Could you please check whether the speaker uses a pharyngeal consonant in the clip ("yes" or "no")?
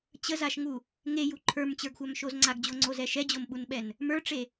no